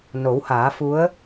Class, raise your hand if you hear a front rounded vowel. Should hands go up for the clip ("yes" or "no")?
no